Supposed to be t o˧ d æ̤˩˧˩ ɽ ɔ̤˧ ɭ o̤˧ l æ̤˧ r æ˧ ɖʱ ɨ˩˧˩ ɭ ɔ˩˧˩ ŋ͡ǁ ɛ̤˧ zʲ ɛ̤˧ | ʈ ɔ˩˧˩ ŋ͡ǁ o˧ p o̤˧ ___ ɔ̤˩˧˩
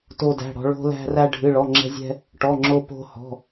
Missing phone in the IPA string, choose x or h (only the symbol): h